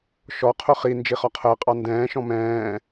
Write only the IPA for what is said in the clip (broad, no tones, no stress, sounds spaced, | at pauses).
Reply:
ʃ ɔ qʰ ʊ χ i n d͡ʒ i χ ɒ qʰ əː qʼ ɑ n d ɛ̃ː ʃ ɔ̃ m ɛ̃ː